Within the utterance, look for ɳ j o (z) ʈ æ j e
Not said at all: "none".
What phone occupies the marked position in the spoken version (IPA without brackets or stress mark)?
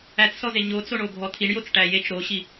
t͡s